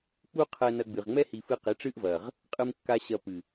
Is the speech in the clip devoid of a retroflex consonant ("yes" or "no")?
no